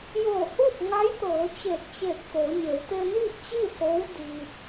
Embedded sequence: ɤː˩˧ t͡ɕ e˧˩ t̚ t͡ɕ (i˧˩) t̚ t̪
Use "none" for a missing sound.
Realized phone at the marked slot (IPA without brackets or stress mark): e˧˩